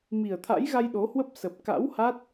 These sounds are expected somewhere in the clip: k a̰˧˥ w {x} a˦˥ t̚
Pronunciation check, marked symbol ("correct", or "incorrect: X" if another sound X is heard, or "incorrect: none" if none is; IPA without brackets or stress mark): incorrect: h